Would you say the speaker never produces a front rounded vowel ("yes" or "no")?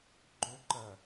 no